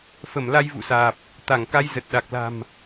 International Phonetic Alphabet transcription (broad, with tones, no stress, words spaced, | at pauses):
fə˧˩mla˧jvṵ˧˨saː˨˩p̚ | t̪a˧˩ŋka˧jzə˨˩t̚ ɗa˨˩k̚la̤˨˩m